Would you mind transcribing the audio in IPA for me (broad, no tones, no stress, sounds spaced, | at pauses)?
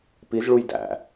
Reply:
p i z ɭ u j d æ̰